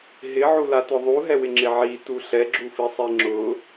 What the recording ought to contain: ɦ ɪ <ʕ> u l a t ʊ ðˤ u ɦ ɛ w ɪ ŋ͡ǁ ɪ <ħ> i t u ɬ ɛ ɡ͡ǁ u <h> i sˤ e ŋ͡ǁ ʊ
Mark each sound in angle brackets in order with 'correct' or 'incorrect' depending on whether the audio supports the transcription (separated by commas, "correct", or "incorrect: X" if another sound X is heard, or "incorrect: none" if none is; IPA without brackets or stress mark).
correct, incorrect: ʕ, incorrect: f